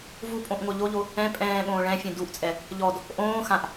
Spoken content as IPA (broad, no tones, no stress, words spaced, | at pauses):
vupʼõʔ ŋʷœʎoʎo | ɛ̃ pʼɛ̃ːɠõː ɭɛ̃fʲɛ̃ duʔt͡sʼɛ | ʎɔd | ʔõː xãʔ